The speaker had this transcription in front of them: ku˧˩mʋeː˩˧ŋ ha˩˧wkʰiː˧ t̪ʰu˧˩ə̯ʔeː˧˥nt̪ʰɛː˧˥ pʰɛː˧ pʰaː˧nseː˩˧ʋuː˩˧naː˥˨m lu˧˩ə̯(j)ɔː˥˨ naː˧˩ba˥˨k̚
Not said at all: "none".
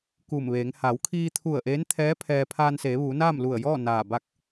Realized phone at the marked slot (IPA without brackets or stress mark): j